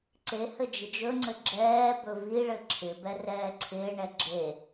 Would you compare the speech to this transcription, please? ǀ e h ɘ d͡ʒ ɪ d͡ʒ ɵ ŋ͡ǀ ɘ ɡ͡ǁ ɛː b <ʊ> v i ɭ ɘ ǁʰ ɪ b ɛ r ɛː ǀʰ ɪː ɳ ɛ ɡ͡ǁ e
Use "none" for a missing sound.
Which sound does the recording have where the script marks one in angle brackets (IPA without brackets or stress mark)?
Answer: ɵ